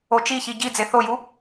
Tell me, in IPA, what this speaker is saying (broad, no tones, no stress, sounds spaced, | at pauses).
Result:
o t͡ʃ i ç i ɟ i d͡z e θ o j u